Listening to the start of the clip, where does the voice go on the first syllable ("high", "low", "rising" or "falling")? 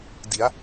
rising